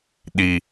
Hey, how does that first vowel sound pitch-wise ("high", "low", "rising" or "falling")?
low